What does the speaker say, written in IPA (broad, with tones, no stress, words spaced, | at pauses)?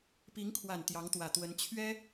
pi˧˥ŋkʰwa˨˩n t̪jɑ˧˥ŋt̪wä˨˩ t̪wə˧˥n t͡ɕʰɥɛ˥